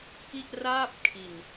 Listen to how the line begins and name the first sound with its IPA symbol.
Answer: k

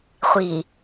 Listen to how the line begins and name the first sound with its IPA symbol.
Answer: χʷ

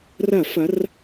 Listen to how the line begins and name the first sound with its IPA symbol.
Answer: r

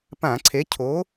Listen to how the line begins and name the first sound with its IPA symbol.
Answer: p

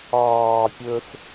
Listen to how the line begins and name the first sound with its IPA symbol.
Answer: ɑː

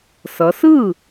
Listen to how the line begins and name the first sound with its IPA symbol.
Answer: s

